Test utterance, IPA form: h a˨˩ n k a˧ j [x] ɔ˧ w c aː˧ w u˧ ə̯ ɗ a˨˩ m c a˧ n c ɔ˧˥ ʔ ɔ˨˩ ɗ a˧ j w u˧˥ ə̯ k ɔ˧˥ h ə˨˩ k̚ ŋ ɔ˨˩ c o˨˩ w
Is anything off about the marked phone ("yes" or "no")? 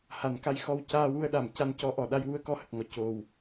no